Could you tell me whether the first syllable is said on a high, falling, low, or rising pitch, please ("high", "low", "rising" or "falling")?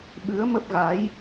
rising